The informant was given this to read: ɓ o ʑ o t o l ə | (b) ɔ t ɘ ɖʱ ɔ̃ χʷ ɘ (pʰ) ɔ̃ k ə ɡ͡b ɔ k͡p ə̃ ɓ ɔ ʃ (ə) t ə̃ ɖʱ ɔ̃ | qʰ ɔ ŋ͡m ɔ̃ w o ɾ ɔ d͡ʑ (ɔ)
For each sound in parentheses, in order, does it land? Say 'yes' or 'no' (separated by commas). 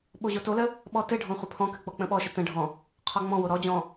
no, yes, yes, no